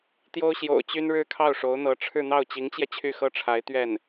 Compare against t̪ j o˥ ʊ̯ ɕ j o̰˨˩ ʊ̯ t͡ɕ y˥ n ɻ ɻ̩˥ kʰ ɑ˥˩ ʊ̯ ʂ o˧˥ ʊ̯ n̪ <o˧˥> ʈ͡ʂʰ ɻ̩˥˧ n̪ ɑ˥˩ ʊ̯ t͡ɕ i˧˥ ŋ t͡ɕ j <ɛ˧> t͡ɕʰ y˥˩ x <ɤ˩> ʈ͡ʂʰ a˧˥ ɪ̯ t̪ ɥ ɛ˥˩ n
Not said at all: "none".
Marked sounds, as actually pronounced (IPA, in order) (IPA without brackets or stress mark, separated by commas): ɤ˧˥, ɛ˧, ɤ˥